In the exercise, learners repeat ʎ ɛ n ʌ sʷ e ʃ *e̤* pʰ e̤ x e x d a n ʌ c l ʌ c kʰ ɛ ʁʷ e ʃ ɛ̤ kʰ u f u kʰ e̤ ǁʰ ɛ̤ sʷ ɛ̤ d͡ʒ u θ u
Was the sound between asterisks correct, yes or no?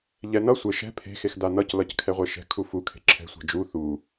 no